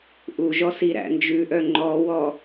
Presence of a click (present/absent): present